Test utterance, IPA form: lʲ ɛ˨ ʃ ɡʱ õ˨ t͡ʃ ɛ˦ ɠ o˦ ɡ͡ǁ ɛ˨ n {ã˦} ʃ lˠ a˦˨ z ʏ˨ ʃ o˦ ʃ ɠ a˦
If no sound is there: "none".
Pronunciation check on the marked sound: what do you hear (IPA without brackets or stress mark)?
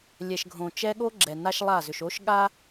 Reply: a˦